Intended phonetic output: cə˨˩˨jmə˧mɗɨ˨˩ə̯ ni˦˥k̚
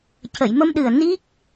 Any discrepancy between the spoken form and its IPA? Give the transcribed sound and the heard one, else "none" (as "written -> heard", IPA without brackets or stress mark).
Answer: none